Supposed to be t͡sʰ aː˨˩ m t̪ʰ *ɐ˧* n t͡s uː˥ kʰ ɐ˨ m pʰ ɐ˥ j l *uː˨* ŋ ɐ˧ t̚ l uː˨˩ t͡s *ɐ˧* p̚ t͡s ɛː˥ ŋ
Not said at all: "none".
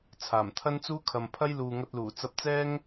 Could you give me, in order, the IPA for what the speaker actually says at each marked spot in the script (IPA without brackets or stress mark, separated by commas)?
ɐ˥, uː˨, ɐ˧